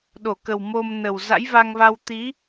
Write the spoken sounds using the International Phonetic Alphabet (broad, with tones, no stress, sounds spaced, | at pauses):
ɗ o˧˩ k ə˨˩ w m o˧ m n ə˨˩ w z a̰˧˥ j v a˧ ŋ v a˧ w t̪ i˨˦